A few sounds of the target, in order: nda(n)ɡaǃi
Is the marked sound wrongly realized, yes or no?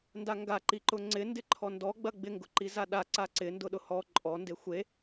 yes